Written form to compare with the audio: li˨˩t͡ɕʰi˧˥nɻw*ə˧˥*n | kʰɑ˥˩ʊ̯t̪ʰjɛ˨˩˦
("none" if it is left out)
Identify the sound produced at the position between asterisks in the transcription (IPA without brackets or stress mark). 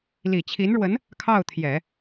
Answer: ə˧˥